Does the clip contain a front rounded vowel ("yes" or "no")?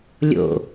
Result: no